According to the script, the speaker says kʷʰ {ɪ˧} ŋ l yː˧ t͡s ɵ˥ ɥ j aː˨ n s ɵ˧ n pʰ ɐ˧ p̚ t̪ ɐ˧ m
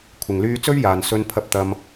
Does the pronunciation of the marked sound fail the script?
yes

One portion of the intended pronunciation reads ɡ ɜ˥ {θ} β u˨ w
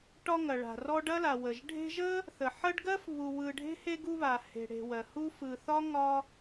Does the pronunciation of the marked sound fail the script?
yes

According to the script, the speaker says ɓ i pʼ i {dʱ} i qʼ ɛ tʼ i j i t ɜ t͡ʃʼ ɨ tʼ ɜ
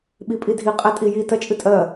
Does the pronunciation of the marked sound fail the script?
no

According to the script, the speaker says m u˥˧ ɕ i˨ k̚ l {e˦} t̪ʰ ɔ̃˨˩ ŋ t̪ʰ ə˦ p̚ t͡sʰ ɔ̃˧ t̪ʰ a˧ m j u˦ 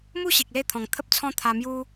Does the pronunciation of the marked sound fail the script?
yes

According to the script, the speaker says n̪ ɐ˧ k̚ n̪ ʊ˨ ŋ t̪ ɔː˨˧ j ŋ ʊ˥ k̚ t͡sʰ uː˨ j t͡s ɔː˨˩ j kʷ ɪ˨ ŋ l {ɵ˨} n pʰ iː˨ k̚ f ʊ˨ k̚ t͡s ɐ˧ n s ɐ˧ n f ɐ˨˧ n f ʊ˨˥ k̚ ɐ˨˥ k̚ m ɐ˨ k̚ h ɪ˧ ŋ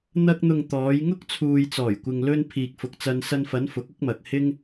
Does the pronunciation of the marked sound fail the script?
yes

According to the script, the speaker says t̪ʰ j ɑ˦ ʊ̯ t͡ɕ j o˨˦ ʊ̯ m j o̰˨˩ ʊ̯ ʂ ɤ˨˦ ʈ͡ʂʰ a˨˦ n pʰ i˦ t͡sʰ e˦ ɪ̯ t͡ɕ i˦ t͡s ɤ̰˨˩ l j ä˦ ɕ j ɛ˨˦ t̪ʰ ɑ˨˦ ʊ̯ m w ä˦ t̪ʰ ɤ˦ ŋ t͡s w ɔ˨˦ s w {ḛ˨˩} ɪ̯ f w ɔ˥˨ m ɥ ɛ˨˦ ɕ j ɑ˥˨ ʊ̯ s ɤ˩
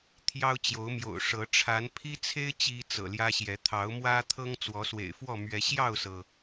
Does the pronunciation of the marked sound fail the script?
no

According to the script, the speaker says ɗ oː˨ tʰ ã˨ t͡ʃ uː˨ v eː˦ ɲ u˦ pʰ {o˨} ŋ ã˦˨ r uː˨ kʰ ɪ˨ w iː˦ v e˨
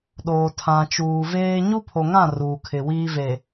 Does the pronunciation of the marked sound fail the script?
no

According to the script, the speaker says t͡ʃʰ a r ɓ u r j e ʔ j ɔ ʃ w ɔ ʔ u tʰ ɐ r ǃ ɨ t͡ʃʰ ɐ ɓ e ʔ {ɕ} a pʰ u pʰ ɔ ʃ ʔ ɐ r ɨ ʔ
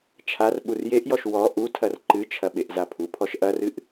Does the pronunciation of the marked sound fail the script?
yes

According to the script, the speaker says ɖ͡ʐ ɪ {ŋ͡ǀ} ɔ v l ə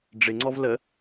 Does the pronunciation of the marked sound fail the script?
no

